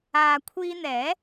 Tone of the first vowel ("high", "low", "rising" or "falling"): low